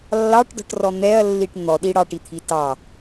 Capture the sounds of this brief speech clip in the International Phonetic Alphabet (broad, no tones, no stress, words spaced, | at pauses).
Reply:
lːɑʈdɔ̤ʈrɔ n̪ɛɐ̯lːiʈ n̪ɔɗi ɽɑʈit̪ʰi tɑ